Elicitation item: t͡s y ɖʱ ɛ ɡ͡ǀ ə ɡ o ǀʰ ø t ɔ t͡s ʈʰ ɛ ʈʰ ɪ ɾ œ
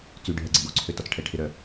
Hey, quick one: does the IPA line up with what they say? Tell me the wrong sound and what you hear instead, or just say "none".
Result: none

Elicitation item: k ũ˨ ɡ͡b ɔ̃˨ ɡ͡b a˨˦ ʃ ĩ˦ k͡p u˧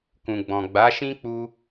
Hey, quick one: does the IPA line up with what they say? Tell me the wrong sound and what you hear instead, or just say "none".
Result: none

